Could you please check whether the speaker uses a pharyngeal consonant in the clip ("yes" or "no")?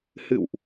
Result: no